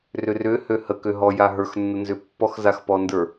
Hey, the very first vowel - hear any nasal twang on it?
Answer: no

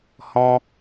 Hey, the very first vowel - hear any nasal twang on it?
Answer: yes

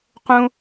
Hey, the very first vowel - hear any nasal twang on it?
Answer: yes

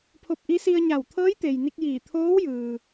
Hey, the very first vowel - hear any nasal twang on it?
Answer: no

